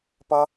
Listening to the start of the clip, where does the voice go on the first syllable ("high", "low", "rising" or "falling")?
high